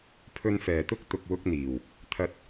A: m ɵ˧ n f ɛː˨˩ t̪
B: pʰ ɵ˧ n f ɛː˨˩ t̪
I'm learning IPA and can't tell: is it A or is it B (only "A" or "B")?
B